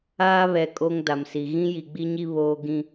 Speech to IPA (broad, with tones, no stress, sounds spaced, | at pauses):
aː˦ β ɛ˨ kʼ o˦ ŋ d a˨ m s i˨ ɣ ĩ˦ j i˨ ɡ͡b i˦ ɲ i˦ β oː˦ ɡ ĩ˦